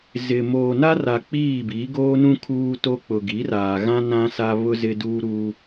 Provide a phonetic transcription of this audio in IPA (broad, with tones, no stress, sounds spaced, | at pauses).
z ɪ˨ m oː˨ n a˦ r a˨ k͡p iː˦˨ b i˨˦ ɡ oː˦ n ũ˦ kʰ uː˦ t o˦ k͡p ʊ˨ ɡ i˨˦ r aː˨ ɣ ã˦ n ã˦ s a˦ β ʊ˦ z ɪ˦ d uː˦ ɾ uː˦